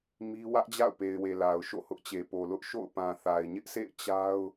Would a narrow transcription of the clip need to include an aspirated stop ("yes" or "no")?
no